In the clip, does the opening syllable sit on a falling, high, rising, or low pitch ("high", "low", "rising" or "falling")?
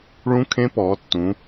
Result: rising